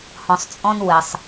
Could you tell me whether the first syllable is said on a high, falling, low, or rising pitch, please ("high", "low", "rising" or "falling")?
low